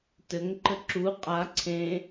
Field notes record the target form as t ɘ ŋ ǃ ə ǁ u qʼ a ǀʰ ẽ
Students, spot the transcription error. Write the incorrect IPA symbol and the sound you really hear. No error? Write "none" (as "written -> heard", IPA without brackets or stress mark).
none